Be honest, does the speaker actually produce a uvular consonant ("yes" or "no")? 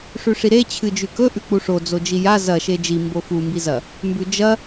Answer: no